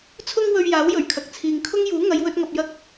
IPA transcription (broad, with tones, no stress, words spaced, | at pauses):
t͡sʰʊ˧ŋ wɵ˧ɥjaː˨˥wjɵ˨˩ɥkʰɐ˨k̚ t͡sʰiː˨ŋkʰʊ˥ŋjuː˨˥ ŋɐ˨˧jwɵ˧t̚ŋɐ˨p̚jɐ˧k̚